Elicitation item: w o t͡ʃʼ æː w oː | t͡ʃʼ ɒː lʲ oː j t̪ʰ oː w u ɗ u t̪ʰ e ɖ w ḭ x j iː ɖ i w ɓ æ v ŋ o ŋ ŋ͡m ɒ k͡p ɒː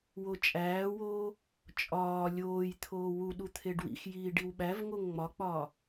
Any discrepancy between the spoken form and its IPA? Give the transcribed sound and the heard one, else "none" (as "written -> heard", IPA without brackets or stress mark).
none